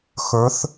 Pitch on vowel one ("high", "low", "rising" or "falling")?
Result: rising